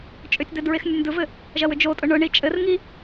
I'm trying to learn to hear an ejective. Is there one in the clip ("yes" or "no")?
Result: yes